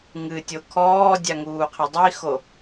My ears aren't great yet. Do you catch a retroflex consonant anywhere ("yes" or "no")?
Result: no